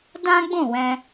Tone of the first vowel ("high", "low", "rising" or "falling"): high